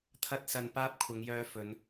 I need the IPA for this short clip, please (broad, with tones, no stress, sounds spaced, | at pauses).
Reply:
t̪ʰ ɐ˧ t̚ s ɐ˨ n p aː˥ p̚ kʷʰ ɐ˨˧ ŋ j œː˧ f ɵ˨˧ n